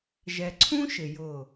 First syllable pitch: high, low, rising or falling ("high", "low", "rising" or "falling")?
low